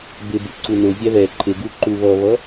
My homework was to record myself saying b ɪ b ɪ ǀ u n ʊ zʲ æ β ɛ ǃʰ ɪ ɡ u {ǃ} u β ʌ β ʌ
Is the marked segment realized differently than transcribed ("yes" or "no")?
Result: no